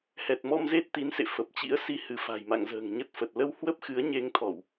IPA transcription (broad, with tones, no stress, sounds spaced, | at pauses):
h ɛ˨˩ t̚ m ɔ˧ m z e˦˥ t̚ t̪ i˨˦ n s ḛ˧˨ f ə˨˩ p̚ t͡ɕ ḭ˧˥ ə̯ s i˧ h ɨ˧˩ f a̤˨˩ j m a̰˧˨ ŋ z ə̤ː˨˩ ŋ ɲ ə˦˥ t̚ f ə˨˩ t̚ l ə˧ w h w ə˦˥ p̚ x ɨ˨˦ ə̯ ɲ e˧ ŋ t̪ʰ ɔ˧˩˨ w